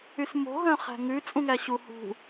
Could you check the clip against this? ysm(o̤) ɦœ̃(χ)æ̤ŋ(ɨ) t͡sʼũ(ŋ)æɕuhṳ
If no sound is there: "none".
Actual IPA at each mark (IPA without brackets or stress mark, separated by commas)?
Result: o̤, χ, ʉ, ŋ